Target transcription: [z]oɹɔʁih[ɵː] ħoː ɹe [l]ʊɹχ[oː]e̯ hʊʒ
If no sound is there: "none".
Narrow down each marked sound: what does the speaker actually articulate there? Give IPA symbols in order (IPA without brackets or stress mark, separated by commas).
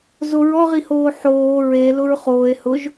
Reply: z, oː, l, oː